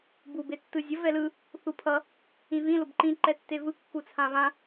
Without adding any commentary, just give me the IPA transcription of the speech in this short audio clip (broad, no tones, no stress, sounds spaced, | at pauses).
b u b e tː ɯ zʲ ʌ v ɛ l ɯ | θ u pʰ ʌ | ĩ v ĩ l o b ǃ ĩ ǃ ɛ tː e v ɯ kː u t͡sʰ ã β ã